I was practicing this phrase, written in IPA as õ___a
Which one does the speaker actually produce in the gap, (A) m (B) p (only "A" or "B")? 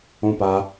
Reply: B